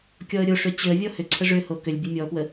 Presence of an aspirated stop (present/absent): present